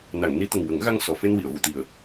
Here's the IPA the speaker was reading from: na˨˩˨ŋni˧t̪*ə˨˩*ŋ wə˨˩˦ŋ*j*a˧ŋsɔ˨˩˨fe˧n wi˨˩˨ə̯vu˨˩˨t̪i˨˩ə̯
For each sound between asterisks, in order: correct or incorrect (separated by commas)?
correct, incorrect